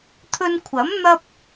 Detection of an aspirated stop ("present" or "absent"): present